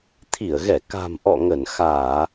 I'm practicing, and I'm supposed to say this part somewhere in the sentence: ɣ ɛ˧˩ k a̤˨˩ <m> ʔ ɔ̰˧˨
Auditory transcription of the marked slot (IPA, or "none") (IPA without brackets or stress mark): m